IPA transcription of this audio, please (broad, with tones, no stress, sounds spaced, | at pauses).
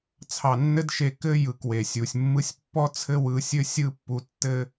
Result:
t͡sʰ ɑ˨ nː ɘ˧ d ʃ e˨ k ɘ˧ j ɯ˨˦ k w e˨ sʲ u˨ sʲ mː ɯ˧ sʲ pː ɔ˦ t͡sʰ ɘ˦ w ɯ˧ sʲ ɘ˦ sʲ ɯ˦ pː u˧ tː ɘ˦